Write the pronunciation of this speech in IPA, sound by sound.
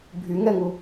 bʱ y ŋ ɛ ŋ u

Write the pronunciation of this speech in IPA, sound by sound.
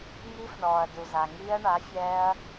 ŋ i˦˥ f ɳ ɔː˩ ɐ̯ d u˩ z a˩ ŋ iː˦˥ ɐ̯ ɳ a˩˥ fʲ ɛː˦˥ ɐ̯

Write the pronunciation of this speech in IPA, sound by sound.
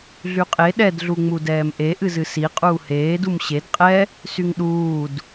ɮ y qʼ e ɗ ɛ d ɮ u ŋ͡m u d ɛː m ʔ e ʔ ɨ z ɨ s i qʼ uː h eː d u m ɕ e d qʼ ɛ | s y ŋ ɗ uː d

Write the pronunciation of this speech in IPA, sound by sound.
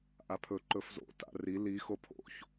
ʔ a pʰ ɵ ǃ ɵ f z o̰ t a̰ r i l i x o pʰ o̰ ç

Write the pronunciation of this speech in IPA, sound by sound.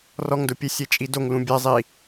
r ɔ ŋ d ʊ pʲ e sʲ e t͡ʃʼ i d o ŋ l ũ bʲ ɛ zˤ i

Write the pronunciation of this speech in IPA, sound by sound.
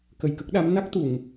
k ə˨˩ j k ə˦˥ k̚ ɗ a˧˥ m n a˦˥ k̚ t̪ u˨˩˨ ŋ

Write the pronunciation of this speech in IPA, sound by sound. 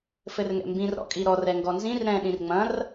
f ɘ r ŋ ɛ̰ m b ĩ r ɾ ɔ̰ kʼ i ɾ ɔ r ɛ ŋ ɡ ɔ n z ĩ r ɾ ɛ̃ ɗ ĩ r ŋ͡m ɐ̃ r

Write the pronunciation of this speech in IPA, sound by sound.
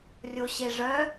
rʲ o ɕ e ʐ œ

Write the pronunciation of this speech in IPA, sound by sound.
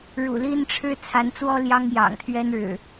ɻ ṵ˨˩ l i˦ n ʈ͡ʂʰ ɻ̩˦ t͡sʰ a˨˦ n t͡s w ɔ˦ l j ɑ˦ ŋ j ɑ̰˨˩ ŋ t̪ʰ ɥ ɛ˦ n ɻ ɻ̩˨˩

